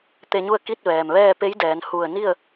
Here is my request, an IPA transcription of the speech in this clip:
t̪ e˧ ɲ u˥˨ ə̯ k i˥˨ t̚ ʋ ɛː˩ m ʋ ɛː˥˨ p e˧˥ j d ɛː˩˧ n h u˧˩ ə̯ n i˥˨ ə̯

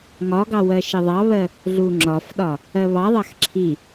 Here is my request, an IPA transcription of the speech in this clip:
ŋ ɒ ɡ ɑ w ɜ ʃ ə ðˤ ɑ β ɜ | ɮ u ŋ͡ǁ ɒ f ɗ ɒ | ɜ β ɑ ðˤ ɑ x ǁʰ i

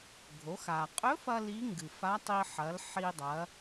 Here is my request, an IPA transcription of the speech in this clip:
ɡʱ o˩˧ x a˩ qʼ ɵ˧˥ f ɐ˧ l i˧˥ ŋ ɡ ɨ˩ f a˧˥ tˤ i˧ ħ ɐ˩˧ l ħ i˧ dˤ ɐ˩˧

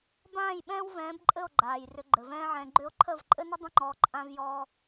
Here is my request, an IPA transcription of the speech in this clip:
b ãː˦˨ j ɓ ɛ̃ː˦ w v ɛ̃ː˨˦ b ǃʼ ɘ˦˨ o̯ ɡ͡ǃ aː˨ j r ʏ˧ ɡ͡ǃ ɘ˨ v ɛ̃ː˦ ʕ ɛ̃˧ ɡ͡ǃ ʏ˦ o̯ ǃʰ ə˦˨ v ǃʼ ɘ˦ n ə˦ dˤ ə̃˦ ŋ͡ǃ ɔ˧ ǃʼ ã˦ v j ɔ˦

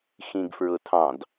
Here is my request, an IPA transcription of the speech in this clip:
x ĩ ɡ f ɹ ʊ tʰ ɑ̃ d

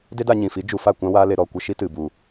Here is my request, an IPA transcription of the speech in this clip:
d e˦ d a˧ ɲ ĩ˨ f i˨˦ d͡ʒ u˨ f a˦˨ kʷ ã˦ w aː˦ l e˧ ɾ ɔ˦˨ kʷ ə˦ ʃ i˦ t ɨ˨ b u˨

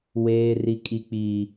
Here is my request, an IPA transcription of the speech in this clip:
w eː˦ r i˦ kʼ i˦ k͡p i˦

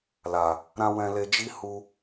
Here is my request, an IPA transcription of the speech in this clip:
l a˨ | ɾ ã˧ w ɛ̃˧ l e˧ d͡ʒ i˦ h u˧

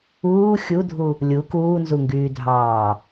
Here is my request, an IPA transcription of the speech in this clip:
uː xʲ u dʱ u | lʲ u k uː n z u ŋ ɡ yː dʱ ɑː

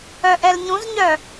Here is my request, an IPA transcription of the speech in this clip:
œ ʔ ɛ l ɲ ũ z ɲ œ

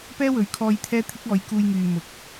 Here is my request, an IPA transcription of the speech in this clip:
p ɛː˥ w ɵ˨˥ ɥ kʰ ɔː˧ j t̪ʰ ɛː˥ t̪ʰ ɪ˥ k̚ ɔː˨˧ j k uː˧ j ŋ yː˨ m ʊ˨ k̚

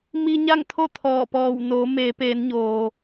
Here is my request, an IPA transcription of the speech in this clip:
m i˧ ɲ a˥˨ ŋ t̪ʰ o˥˨ t̪ʰ ɔː˧˩ p ɔː˧˩ w n oː˩˧ m eː˩˧ p eː˩˧ n ɲ oː˩

